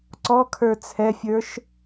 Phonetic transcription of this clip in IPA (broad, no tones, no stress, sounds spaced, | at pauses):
ǀ ɔ kʰ ə˞ t͡sʰ ɛ fʲ ə˞ ʃ